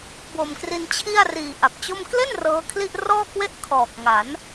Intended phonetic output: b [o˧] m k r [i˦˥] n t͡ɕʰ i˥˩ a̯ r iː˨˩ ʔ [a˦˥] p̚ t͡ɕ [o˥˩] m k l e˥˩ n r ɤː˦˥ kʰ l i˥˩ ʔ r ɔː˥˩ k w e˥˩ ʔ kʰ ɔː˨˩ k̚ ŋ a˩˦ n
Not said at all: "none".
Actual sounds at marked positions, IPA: o˨˩, i˧, a˨˩, o˥˩

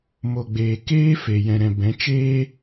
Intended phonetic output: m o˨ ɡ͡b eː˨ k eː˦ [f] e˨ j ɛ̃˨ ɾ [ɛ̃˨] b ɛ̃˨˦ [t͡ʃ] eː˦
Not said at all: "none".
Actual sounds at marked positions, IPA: f, ɛ̃˨, t͡ʃ

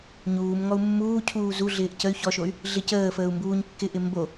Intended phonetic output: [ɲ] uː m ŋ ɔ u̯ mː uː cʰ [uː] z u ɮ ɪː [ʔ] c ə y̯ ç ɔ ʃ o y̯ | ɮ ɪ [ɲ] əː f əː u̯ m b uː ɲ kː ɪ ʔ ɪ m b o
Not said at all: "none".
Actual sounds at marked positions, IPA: ɲ, uː, ʔ, c

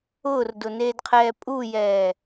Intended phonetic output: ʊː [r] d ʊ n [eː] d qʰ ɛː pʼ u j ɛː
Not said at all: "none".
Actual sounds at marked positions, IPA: r, eː

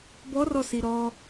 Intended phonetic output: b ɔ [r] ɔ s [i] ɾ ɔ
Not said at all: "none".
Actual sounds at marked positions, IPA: r, i

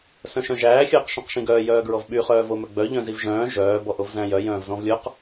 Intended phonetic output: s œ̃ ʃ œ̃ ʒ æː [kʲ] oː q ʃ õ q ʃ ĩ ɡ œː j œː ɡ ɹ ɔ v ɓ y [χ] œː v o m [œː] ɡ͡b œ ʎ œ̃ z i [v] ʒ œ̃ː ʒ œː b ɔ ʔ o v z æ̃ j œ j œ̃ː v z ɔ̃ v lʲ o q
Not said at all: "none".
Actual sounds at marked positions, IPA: xʲ, χ, œ, v

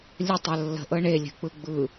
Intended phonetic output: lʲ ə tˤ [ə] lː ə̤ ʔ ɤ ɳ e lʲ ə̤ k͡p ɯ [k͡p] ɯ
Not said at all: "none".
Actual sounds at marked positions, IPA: ə, ɡ͡b

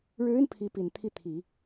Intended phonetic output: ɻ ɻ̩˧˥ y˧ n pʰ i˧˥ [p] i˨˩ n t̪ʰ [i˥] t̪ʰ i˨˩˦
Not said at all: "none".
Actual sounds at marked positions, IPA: p, i˥˩

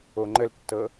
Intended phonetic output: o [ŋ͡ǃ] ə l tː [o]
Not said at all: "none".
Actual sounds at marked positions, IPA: ŋ͡ǃ, ɤ

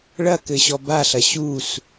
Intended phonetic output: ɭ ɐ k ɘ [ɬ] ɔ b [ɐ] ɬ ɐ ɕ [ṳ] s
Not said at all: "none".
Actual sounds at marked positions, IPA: ɕ, a, u

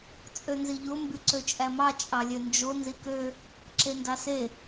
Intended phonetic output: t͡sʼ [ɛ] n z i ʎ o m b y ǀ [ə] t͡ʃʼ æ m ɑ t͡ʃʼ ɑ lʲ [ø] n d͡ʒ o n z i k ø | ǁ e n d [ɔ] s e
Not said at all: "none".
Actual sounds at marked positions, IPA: ø, ø, ø, ɑ

